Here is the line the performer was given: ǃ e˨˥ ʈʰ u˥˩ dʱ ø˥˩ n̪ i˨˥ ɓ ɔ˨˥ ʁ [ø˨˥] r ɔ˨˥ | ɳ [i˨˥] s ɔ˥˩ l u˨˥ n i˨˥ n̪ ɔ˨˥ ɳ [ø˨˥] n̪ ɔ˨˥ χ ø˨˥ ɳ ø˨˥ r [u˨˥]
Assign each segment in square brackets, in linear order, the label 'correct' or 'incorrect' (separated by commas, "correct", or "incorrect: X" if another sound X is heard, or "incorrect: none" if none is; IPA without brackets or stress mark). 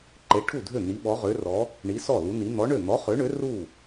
correct, correct, incorrect: ø˥˩, incorrect: u˥˩